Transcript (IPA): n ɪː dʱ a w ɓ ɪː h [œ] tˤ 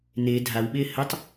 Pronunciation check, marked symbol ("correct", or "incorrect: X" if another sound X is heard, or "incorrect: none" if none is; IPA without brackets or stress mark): incorrect: ə